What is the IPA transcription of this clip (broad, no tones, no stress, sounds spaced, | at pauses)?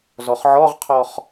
z ɔ χ ʕ ɔ ʁ qʰ ɔ χ